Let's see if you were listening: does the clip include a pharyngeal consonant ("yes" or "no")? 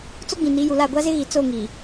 no